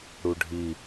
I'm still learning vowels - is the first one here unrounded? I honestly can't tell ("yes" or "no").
no